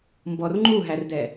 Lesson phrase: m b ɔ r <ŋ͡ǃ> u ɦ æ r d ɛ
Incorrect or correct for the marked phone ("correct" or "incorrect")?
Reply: correct